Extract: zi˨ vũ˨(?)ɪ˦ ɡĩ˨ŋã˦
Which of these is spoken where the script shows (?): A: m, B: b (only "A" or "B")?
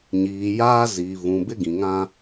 B